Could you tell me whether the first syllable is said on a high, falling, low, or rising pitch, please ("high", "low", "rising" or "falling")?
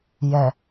low